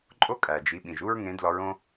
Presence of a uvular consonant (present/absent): absent